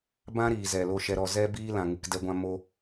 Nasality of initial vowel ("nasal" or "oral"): nasal